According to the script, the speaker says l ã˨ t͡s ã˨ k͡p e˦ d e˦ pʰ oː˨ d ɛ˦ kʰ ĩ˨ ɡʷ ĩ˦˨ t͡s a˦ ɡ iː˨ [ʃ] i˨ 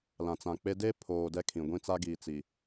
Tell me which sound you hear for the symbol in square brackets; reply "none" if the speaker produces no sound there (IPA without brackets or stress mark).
t͡s